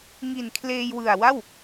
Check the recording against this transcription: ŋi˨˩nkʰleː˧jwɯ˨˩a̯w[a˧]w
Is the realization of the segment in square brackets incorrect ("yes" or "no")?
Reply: yes